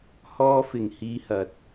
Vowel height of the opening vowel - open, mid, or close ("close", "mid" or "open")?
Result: mid